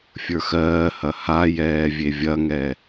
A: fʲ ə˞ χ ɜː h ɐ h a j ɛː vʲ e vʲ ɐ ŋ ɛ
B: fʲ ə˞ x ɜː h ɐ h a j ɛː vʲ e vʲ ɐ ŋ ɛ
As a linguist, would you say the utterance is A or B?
B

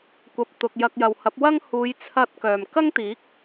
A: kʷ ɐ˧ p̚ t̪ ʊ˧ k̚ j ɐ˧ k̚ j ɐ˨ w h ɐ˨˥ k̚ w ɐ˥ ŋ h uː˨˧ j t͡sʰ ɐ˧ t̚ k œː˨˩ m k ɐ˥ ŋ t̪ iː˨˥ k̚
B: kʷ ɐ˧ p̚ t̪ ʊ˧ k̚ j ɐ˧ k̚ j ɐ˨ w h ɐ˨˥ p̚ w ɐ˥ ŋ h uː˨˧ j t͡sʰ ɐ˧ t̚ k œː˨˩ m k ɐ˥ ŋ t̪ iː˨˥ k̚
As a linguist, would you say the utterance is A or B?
B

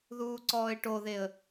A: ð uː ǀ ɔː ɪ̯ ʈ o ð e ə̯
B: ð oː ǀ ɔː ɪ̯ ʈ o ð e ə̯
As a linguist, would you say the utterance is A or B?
A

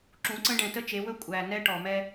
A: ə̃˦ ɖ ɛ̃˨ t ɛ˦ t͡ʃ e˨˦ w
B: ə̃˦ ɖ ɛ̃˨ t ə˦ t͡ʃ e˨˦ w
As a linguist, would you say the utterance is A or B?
B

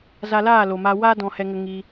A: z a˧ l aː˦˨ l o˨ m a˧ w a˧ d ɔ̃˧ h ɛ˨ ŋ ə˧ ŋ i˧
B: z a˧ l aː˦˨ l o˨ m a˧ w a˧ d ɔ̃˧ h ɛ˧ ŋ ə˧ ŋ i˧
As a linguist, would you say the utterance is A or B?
B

